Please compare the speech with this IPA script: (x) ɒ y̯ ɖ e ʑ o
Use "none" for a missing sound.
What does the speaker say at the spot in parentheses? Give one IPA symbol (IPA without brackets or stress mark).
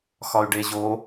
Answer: x